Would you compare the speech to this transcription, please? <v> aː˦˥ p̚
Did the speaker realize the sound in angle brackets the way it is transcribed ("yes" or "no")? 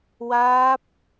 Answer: no